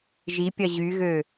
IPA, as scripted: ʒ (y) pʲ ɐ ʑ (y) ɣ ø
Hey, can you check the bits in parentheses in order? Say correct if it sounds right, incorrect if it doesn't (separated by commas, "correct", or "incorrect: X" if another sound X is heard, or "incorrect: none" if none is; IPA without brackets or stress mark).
incorrect: i, correct